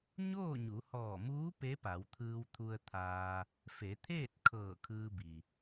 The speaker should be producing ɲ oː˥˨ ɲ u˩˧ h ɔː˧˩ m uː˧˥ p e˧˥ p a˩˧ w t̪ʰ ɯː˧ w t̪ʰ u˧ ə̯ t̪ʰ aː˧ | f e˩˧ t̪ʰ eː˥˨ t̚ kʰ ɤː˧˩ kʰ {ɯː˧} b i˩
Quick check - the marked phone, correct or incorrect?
correct